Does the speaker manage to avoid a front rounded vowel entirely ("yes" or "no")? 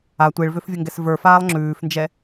no